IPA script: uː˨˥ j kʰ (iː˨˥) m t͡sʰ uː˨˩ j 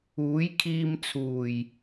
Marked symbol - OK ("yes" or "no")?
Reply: no